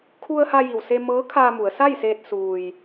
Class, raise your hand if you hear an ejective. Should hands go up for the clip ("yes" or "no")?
no